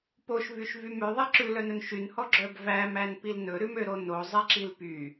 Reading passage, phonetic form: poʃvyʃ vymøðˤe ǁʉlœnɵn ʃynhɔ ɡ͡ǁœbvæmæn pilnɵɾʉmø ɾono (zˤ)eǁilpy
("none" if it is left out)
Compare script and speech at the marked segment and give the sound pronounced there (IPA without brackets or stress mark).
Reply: zˤ